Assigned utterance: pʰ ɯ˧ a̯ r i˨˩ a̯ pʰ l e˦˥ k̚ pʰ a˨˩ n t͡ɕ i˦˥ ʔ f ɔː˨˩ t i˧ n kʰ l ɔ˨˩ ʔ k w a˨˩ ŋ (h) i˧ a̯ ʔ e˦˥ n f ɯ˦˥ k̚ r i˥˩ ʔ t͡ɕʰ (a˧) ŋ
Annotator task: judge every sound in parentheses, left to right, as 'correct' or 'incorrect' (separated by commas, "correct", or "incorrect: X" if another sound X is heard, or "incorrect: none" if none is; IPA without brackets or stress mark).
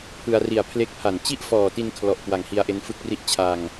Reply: correct, correct